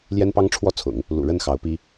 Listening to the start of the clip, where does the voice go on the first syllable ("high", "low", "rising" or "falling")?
high